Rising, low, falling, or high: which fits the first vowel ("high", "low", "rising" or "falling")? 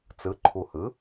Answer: rising